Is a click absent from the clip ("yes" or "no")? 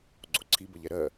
no